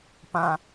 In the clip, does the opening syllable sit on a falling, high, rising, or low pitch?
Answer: low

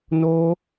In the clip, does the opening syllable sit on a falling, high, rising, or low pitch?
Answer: high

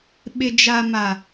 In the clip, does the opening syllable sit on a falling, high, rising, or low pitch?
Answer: low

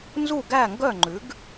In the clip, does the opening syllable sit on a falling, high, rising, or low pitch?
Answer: falling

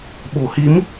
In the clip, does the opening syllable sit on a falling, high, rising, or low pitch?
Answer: low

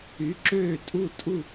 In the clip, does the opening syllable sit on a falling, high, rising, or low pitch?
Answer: rising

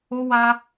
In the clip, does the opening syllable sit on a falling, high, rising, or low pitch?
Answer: high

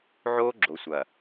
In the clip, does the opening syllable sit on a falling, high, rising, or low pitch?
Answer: high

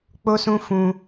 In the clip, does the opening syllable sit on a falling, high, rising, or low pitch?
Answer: high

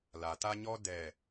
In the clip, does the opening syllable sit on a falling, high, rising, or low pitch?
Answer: low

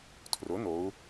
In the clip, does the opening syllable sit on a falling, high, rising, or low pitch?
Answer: rising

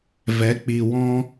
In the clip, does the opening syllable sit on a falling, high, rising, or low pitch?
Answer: rising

